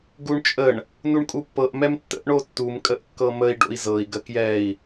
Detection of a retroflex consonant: present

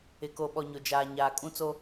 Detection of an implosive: present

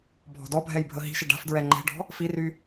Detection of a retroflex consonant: present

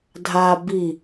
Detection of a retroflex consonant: absent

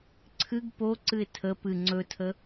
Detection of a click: present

